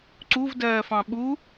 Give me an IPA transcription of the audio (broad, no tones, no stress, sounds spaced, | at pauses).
ǀ u v d ɜː f ɑ̃ ɓ u